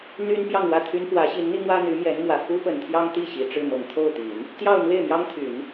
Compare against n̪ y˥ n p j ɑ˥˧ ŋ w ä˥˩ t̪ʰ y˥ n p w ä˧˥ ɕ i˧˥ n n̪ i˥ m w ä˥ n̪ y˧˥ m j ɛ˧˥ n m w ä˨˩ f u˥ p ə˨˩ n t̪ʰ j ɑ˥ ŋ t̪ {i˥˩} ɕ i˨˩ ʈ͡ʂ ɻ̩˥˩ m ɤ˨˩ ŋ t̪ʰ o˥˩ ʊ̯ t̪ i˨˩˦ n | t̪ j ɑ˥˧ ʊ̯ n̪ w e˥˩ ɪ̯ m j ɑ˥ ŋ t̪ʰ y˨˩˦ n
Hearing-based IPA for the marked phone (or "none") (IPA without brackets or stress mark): i˥˩